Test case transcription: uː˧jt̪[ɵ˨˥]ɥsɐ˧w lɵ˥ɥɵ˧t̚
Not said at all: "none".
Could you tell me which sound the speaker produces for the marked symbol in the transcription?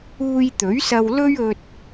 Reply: ɵ˨˥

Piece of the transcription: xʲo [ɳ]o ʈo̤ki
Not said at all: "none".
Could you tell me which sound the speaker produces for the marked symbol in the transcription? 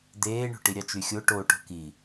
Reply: ʈ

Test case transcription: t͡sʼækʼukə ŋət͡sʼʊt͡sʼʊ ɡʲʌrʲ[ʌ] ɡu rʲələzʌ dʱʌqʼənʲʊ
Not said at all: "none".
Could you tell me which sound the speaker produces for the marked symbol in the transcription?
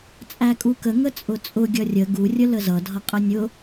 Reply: ə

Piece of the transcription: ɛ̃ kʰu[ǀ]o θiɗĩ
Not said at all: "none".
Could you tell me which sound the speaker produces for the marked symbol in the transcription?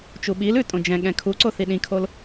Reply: ǀ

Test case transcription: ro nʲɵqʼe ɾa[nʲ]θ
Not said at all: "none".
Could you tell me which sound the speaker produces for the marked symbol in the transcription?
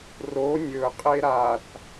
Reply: none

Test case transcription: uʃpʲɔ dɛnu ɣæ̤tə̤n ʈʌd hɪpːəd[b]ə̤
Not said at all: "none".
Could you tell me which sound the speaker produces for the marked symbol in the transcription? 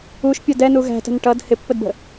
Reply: b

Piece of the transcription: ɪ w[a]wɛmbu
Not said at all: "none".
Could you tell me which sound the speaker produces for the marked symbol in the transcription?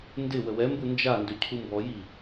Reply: ə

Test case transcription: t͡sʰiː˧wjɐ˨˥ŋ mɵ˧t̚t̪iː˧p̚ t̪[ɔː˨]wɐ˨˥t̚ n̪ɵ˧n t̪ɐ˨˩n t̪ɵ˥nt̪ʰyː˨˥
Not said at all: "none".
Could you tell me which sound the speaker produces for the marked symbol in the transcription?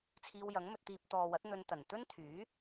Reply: ɔː˨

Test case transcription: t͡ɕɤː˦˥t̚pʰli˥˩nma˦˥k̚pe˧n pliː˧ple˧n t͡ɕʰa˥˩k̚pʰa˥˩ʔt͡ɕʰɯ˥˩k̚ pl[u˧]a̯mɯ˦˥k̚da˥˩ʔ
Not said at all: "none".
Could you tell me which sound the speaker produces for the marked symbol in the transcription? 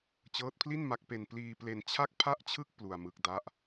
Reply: u˧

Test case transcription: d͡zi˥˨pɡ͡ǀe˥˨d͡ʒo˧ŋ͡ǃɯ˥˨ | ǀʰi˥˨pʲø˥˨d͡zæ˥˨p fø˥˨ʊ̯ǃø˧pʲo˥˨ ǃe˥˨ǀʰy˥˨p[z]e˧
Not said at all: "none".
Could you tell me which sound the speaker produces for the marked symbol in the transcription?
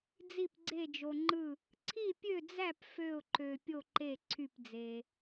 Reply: d͡z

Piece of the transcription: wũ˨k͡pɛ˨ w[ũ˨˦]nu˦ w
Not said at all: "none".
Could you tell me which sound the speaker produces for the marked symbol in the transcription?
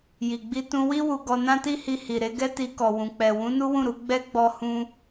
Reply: ũ˨˦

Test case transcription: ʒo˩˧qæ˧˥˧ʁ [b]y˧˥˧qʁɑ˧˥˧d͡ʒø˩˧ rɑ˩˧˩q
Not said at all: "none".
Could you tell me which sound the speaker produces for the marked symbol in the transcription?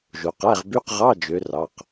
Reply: b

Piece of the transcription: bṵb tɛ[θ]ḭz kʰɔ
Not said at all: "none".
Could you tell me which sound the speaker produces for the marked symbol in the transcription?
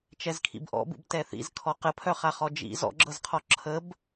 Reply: θ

